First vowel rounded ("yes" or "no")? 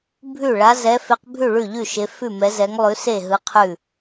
yes